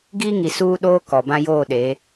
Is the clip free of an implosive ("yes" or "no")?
no